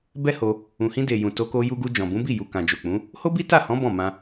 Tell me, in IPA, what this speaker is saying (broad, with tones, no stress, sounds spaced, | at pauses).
b ɛ˦ h o˧ | ũ˨ h ĩ˧ d e˨ j ũ˨ t o˧ k o˧ j u˧ ɡ u˧ d͡ʒ ɔ̃˨ b ũ˨˦ b i˦˨ j u˨ k ã˨ d͡ʒ o˨ k͡p ũ˨˦ | h o˦ b i˦ t a˦˨ h ɔ̃˨˦ b ɔ̃˦˨ m ã˧